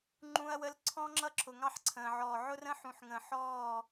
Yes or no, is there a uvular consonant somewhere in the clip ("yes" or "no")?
no